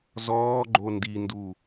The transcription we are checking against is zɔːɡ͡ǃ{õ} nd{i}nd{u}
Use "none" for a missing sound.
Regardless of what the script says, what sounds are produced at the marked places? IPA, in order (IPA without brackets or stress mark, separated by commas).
o, i, u